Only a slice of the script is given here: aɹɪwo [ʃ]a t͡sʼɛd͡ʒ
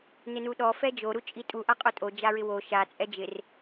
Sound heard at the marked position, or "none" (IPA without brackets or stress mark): ʃ